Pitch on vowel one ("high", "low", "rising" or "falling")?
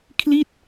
falling